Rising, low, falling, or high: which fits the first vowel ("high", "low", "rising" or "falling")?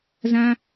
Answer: high